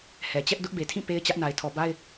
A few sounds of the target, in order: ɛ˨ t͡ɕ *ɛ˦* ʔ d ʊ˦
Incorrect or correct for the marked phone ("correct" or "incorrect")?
correct